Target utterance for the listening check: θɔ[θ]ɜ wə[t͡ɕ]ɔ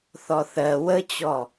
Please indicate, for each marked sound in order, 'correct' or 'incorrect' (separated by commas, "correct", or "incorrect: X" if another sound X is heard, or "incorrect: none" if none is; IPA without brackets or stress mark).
correct, correct